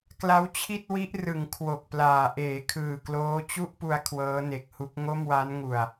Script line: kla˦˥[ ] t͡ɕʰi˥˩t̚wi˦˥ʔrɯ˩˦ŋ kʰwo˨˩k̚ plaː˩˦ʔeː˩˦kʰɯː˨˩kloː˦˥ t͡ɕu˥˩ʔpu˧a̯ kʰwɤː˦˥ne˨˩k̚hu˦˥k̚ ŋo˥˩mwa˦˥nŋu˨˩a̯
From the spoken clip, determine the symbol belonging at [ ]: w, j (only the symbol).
w